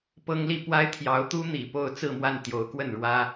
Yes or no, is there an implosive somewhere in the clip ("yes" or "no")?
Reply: no